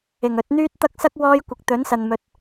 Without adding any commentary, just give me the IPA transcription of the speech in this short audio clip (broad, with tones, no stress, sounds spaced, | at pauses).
ɪ˨˩ ŋ ɵ˨˥ t̚ n̪ yː˥ t̚ t̪ ɐ˥ k̚ s ɐ˥ k̚ w ɔː˥ j kʷ ɪ˨˥ k̚ t̪ ɵ˨˥ n s ɐ˨ n m ɵ˨ t̚